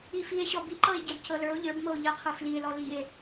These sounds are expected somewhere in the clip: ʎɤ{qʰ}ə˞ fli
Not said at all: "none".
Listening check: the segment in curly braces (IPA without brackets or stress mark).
qʰ